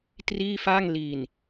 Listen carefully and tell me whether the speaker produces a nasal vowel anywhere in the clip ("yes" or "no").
no